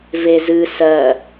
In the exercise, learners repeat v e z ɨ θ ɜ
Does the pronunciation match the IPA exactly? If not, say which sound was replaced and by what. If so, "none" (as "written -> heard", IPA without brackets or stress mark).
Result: θ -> s